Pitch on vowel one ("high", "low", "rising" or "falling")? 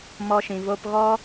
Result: high